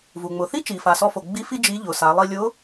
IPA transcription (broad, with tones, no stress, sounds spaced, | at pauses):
v u˩ ŋ͡m ʊ˩ θ i˥ t͡ʃ i˩ f a˩ s ɔ˧ f o˩ ɡ͡b i˧˥ f i˥ d͡ʒ i˧˥ ʎ ʊ˩˧ s a˩˧ lˠ i˧ lʲ ʊ˧˥